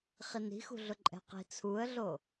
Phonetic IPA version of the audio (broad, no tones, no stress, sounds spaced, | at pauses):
χ i n i̤ x ṳ ɮ ʊ ǃʼ ɛ̤ q i̤ t͡sʰ u ə̯ ɮ o